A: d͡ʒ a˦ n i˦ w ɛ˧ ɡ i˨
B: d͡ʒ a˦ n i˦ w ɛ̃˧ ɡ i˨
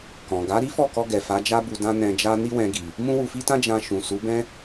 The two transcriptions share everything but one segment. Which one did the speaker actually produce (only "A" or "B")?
B